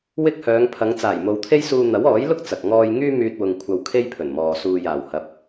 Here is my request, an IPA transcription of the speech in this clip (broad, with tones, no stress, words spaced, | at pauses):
wɪ˥k̚hœː˨˧ŋpʰɐ˨˧ŋ t͡saː˨˩jmo˨wt̪ʰe˥jsuː˧ n̪ɐ˨˥wɔː˨˥jlʊ˥k̚ t͡sɐ˨k̚ŋɔː˥j ŋyː˥ myː˧t̚wʊ˨ŋ kʷʰɐ˧wkʰe˥jpʰɵ˨˩nmɔː˨ suː˨jaː˨˩w hɐ˨˥p̚